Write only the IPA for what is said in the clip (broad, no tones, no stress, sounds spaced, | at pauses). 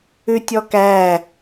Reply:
ʉ tʲ ɔ k æ